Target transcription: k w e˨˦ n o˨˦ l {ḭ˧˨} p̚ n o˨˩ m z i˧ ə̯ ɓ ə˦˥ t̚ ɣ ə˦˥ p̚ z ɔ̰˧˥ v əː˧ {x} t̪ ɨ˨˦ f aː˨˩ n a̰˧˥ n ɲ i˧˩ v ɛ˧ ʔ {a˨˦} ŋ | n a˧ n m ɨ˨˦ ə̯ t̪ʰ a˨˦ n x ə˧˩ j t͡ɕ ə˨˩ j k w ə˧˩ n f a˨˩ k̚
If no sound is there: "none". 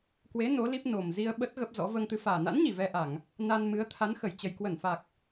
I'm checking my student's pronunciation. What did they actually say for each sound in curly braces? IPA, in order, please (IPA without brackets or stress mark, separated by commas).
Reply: i˦˥, ŋ, a˧˩˨